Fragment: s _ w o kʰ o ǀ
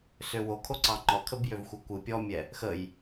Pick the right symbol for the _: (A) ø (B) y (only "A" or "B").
A